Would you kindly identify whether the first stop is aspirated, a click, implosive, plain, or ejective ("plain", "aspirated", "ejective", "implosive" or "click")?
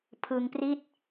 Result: aspirated